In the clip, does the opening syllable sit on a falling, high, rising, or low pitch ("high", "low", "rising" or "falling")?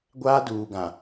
high